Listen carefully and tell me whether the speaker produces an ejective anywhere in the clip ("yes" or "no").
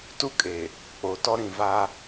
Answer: yes